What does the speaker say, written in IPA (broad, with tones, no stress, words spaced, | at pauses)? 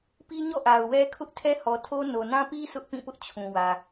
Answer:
pi˦ɲɔ̰˦˨ ʔa˨ʊ̯wɛ˦ kʰʊ˦ʔ tʰɛ˦hɔ˨tʰo˦ no˨nã˦pi˦ sʊ˦ʔpĩ˦˨pʊ˦ʔ t͡ɕʰũ˨wä˨